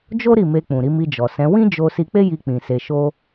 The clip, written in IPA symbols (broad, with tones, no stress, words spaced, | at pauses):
d͡ʒo˦ ɾi˦˨me˧k͡pũ˨ɾi˧ mi˧d͡ʒɔ˨sɛ̃˨˦ wĩ˦d͡ʒo˧ si˧k͡pe˦ji˧ k͡pĩ˨se˧ʃo˦